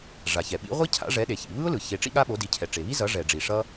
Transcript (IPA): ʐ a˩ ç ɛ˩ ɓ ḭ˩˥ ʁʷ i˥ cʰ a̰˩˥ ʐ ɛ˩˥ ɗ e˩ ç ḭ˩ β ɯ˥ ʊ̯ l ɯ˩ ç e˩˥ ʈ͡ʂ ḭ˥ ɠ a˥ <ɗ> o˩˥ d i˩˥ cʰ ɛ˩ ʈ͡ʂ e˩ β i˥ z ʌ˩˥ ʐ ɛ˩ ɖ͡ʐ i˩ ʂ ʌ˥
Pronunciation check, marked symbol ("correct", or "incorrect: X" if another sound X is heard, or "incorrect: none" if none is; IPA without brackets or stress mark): incorrect: ɓ